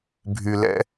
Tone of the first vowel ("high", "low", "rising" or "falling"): low